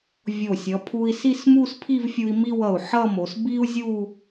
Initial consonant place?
labial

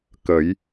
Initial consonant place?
velar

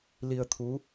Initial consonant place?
alveolar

